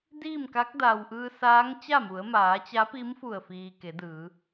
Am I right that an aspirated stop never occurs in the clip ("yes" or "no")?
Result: yes